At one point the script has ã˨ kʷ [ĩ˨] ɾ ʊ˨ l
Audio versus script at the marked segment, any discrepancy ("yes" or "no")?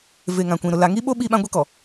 no